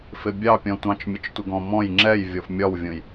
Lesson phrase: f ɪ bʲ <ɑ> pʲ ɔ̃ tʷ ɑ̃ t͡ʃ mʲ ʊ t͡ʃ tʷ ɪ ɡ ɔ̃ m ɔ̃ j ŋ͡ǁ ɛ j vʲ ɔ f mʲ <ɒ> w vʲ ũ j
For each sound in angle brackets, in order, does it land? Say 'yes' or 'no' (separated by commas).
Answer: yes, yes